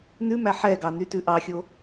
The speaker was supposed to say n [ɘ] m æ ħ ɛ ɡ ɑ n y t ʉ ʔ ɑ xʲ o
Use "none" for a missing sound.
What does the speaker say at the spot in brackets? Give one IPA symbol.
ʉ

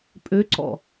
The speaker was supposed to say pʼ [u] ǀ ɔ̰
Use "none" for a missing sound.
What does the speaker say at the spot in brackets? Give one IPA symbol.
ø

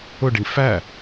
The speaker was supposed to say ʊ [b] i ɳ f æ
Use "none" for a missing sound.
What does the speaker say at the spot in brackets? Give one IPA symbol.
ɖ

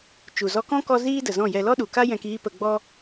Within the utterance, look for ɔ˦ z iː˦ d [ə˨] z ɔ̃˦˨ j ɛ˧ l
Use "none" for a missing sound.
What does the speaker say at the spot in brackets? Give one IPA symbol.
ə˨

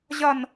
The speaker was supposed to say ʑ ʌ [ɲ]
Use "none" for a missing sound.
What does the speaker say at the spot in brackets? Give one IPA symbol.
n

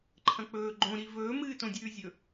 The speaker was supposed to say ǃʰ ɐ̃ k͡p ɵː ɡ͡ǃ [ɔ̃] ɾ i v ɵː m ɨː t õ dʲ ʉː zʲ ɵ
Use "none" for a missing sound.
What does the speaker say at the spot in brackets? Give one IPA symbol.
õ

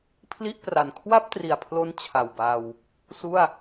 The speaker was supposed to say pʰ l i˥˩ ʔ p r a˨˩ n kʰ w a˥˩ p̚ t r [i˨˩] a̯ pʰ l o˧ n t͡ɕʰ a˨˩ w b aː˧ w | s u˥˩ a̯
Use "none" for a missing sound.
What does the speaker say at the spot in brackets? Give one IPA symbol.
i˨˩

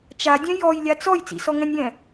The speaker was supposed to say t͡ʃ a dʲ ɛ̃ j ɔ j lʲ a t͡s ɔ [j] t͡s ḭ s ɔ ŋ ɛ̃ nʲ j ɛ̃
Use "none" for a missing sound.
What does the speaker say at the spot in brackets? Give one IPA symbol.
j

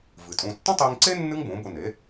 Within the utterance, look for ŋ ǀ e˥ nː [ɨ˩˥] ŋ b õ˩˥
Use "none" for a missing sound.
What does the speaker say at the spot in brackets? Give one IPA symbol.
ɨ˥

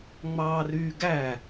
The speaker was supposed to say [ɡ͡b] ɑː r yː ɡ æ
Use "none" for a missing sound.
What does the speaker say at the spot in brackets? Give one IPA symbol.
ŋ͡m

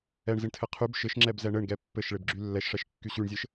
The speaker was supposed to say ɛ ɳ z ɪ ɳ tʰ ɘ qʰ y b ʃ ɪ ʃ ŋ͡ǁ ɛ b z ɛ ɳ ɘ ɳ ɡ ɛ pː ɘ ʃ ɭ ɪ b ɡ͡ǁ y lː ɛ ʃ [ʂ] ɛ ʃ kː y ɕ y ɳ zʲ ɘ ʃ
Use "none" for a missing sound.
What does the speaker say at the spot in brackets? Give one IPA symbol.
ʂ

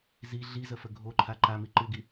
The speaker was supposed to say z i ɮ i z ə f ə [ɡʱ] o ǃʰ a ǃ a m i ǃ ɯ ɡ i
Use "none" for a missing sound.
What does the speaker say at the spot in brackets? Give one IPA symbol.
ɡʱ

